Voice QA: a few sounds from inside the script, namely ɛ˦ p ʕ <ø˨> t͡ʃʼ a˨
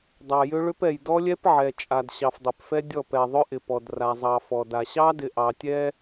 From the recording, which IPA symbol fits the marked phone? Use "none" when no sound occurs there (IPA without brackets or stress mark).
ɛ˨